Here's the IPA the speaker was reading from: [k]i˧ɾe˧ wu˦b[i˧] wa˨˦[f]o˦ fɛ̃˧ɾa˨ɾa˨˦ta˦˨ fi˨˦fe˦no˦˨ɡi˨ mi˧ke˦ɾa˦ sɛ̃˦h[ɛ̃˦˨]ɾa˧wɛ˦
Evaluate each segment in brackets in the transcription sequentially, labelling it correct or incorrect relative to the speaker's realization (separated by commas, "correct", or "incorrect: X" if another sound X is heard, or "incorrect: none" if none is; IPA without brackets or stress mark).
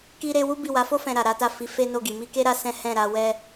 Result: correct, incorrect: i˦˨, correct, correct